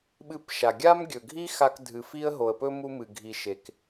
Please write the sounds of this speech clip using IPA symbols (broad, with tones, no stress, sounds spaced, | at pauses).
ɓ ɨ˧ p ʃ a˩ ɡʲ a˥ m ɡʲ ɵ˩ ɡʱ i˥ x a˧ k dʱ ɨ˩ f i˧ ə̯ ɦ o˩ ə̯ p ɵ˧ m u˧ m ɨ˩ ɡʱ i˩ ʃ e˩ k